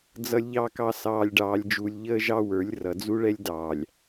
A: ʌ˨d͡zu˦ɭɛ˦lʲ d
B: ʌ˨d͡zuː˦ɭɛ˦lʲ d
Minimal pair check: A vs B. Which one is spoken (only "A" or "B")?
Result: A